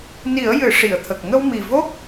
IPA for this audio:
ni˨˩˦ə̯ jɨ˨˩˦ʂi˨˩˨ə̯t̪ʰə˨˩k̚ ŋə˧wmi˨˩ vo˦˥k̚

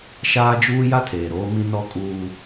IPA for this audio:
ʃaː˦d͡ʒuː˦ ja˦tʰeː˨ ɾoː˦mĩ˦ nɔ˦kʼuː˦

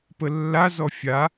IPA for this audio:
pəlːazɔ fʲa

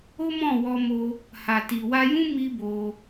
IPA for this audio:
o˦mɔ̃˦˨wɔ˧mo˧ | ha˨ti˨wa˧jũ˦ mi˦bo˧

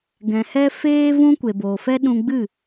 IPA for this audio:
ɡɛ̃˨hɛ˧ feː˧vũ˧ kʷe˨bo˨fɛ˦ ɗũ˧ɡ͡bɨ˦˨

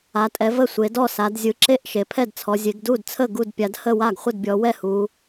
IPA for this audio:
a˩˧tʼɛ˩˧ və˥˩sʷe˩˧dɔ˥˩ sa˩˧dzʲɯ˩˧ǁe˥˩ʔ ʃe˩˧pʰɛ˥˩dt͡sʰɔ˩˧ zʲe˩˧ɡdu˥˩dt͡sʰə˥˩ ɡu˥˩dpʲa˩˧dhə˥˩ wa˥˩ɡχʷə˥˩dbʲɔ˩˧wɛ˥˩ hu˩˧

